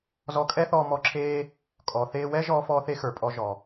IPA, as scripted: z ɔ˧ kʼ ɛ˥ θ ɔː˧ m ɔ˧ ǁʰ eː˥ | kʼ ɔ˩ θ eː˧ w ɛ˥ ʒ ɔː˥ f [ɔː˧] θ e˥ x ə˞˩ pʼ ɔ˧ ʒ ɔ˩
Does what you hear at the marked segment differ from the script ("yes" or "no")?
yes